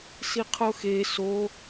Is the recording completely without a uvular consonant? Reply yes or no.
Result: no